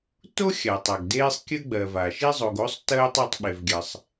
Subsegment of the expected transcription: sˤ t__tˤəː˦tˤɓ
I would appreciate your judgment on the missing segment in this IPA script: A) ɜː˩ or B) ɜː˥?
B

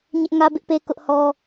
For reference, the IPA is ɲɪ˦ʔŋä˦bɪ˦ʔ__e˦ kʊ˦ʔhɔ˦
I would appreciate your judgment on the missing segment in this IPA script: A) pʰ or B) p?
B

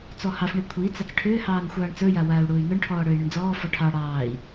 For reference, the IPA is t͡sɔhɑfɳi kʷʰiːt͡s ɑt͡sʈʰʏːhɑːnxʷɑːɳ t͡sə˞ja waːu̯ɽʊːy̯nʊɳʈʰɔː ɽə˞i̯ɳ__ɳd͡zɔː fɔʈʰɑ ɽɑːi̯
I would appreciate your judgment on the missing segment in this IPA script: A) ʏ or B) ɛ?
A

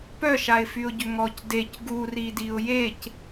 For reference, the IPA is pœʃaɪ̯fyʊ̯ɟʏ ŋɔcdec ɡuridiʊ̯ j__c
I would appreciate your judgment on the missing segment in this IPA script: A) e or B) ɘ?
A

